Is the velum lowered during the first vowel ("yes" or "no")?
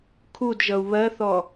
no